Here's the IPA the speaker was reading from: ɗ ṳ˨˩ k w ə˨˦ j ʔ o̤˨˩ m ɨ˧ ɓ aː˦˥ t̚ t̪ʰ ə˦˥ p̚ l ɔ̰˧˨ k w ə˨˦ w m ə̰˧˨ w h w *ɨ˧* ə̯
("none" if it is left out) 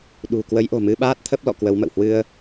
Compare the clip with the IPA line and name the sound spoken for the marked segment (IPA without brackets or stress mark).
ɨ˧